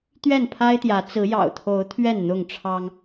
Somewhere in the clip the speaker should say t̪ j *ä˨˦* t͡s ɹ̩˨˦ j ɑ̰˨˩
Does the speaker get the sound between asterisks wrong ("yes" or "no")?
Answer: no